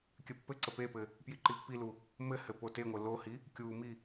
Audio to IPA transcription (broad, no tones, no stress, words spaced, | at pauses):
kʲɘpːɘǀə pepɘ | pjiǃipːilu | mɘhɘ poteŋʷɘ lohi | kʲumi